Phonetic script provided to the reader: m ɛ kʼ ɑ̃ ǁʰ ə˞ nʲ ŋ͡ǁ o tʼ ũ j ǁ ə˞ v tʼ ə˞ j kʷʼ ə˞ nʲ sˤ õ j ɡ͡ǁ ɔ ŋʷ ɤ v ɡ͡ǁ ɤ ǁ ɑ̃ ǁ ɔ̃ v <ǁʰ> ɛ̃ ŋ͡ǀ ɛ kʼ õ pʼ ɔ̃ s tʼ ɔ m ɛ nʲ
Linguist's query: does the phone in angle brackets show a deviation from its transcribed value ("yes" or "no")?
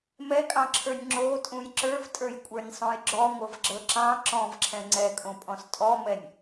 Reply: no